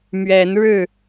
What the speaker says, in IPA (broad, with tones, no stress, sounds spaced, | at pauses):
m ɥ ɛ˨˦ n ɻ ɻ̩˥˨